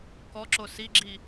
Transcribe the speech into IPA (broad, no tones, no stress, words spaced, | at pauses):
kɔǁo siɡ͡ǁi